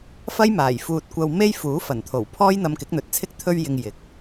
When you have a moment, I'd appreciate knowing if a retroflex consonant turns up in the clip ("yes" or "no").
no